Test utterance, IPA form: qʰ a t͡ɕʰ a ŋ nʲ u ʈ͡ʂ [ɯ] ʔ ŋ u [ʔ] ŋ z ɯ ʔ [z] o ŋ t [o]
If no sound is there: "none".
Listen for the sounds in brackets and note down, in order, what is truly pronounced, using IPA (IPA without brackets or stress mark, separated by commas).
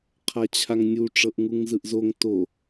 ɤ, none, z, o